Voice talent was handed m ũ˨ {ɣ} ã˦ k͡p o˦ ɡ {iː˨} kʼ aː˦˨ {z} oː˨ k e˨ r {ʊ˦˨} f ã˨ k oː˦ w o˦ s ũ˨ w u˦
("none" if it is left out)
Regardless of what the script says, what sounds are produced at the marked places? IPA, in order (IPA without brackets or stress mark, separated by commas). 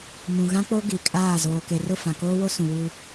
ɣ, i˨, z, ʊ˦˨